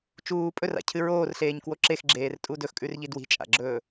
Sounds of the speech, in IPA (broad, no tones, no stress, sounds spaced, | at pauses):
t͡ʃ uː pʼ ɵ r a̰ cʰ ɨ ɹ oː r ɬ eː ɲ k w o ǁ e x ɡ͡ǁ eː r tʼ u d ɵ x kʼ ʉ r ʎ i d w i̤ t͡ʃʼ a̰ ɡ͡ǁ ɵː